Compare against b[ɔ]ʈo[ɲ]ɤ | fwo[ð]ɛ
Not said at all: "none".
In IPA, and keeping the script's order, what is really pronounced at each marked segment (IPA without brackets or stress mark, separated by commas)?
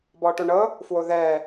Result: ɔ, ɳ, ð